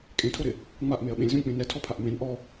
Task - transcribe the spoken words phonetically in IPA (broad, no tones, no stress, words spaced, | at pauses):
kʼẽtʰoɾɪ | ŋ͡maʔmeɐ̯ ɓẽlʲzũlʲk͡pẽ nɛtʰɔpʰaʔ mẽn ʔɔ